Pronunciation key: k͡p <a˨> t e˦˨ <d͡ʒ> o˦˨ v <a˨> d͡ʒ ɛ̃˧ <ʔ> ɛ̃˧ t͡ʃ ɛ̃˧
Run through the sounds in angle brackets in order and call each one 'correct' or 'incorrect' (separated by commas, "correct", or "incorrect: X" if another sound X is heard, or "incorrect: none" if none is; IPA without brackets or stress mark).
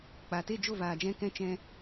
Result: correct, correct, incorrect: aː˨, incorrect: k